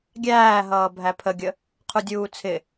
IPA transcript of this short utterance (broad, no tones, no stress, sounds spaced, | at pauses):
ɡʲ æː ɦ ʌː bʱ æ pʰ ə ɡʲ ə | qʰ u dʲ uː t͡sʰ ɪ